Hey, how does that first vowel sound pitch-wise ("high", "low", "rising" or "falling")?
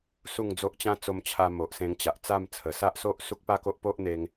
falling